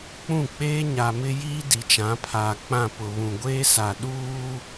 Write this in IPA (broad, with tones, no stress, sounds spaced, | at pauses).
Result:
k͡p ũ˦˨ k͡p eː˦ ɲ a˨ m ɪ˦ j iː˦ d i˨ t͡ʃ ã˨˦ pʰ aː˨ k͡p ã˦˨ p ʊ˨ β ũ˨ ɡʷ eː˦ s a˨ ɗ uː˦